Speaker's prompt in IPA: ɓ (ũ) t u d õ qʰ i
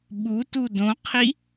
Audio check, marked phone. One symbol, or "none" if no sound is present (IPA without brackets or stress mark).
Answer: u